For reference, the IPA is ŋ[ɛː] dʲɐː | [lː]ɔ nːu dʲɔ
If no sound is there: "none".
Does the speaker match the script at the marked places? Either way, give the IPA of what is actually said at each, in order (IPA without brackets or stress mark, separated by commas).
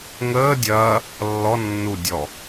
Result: əː, lː